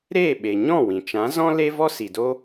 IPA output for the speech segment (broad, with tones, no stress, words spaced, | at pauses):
ɾeː˦˨ ɓe˨ɲɔ̃˦˨ wĩ˨ t͡ʃã˨˦zɔ̃˦ le˦vɔ˦ si˨do˦